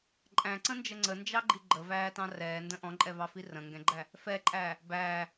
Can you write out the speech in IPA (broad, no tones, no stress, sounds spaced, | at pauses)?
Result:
ǃʼ æ̃ ǀ ə̃ n d͡ʒ ə ŋ͡ǀ ə n d͡ʒ ɑ ɡ͡ǃ i ɡ͡ǃ ə v æː t ɑ̃ r ɛː n d ə̃ ʔ ɔ̃ ǃʼ ɛ v ɑ f i r ə̃ ŋ ɡ ɛ̃ ɡ͡ǃ æ | f ɛ ǃʼ æː | b æː